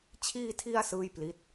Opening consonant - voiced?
no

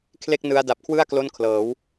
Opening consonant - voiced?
no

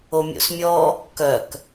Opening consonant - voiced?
yes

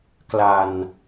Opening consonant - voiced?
no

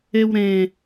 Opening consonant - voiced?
yes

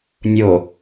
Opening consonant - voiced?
yes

